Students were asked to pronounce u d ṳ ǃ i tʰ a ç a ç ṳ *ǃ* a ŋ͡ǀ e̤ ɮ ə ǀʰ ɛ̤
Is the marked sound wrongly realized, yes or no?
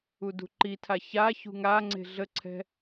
yes